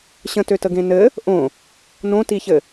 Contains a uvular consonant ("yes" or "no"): no